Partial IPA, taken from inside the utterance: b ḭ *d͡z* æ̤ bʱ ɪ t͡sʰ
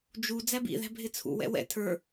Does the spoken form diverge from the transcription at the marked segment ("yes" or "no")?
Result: yes